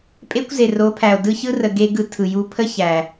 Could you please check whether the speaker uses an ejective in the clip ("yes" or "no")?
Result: yes